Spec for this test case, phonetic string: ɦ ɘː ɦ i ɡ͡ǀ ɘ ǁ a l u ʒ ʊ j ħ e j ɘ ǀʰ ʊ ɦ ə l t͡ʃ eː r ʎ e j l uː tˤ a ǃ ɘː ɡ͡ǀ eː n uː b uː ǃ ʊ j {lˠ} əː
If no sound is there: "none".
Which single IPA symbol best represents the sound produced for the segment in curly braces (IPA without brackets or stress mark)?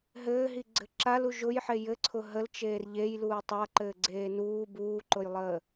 lˠ